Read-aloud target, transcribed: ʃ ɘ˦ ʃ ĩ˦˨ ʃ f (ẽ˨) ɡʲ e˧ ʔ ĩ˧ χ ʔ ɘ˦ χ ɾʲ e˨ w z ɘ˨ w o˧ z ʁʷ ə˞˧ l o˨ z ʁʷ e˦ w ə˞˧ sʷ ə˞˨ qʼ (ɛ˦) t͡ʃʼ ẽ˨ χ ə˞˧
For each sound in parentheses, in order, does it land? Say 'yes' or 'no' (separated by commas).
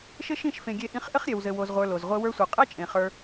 yes, yes